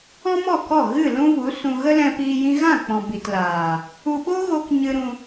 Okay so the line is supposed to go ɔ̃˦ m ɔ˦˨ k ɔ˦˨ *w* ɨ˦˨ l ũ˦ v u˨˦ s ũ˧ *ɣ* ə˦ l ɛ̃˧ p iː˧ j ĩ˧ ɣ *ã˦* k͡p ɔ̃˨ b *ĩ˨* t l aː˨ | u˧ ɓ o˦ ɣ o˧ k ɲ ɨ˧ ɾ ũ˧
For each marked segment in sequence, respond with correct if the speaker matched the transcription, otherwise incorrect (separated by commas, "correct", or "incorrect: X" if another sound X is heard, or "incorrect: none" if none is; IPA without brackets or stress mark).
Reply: incorrect: ɣ, correct, incorrect: ã˦˨, incorrect: i˨